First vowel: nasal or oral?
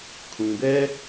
nasal